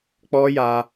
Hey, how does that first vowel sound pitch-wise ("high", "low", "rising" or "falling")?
high